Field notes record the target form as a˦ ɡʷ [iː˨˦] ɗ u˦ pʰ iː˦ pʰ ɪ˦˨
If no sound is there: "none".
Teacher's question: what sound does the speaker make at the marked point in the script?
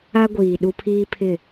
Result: iː˨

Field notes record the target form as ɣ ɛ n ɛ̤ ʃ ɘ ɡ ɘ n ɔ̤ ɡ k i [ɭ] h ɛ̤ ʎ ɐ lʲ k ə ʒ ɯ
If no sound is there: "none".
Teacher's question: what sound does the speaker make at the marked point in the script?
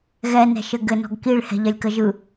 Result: ɭ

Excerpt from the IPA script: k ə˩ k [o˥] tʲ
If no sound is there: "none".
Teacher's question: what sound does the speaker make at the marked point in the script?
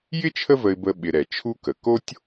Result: o˥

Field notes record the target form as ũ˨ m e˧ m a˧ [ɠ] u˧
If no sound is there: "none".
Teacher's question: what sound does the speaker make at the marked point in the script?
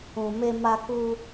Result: k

